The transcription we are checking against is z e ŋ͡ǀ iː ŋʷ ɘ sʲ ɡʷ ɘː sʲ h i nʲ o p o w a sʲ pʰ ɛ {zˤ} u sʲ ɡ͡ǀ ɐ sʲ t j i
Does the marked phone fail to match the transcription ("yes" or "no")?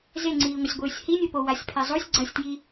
no